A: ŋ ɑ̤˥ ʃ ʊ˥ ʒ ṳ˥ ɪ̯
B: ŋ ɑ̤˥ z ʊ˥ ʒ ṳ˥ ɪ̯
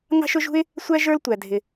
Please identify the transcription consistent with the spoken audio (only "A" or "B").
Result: A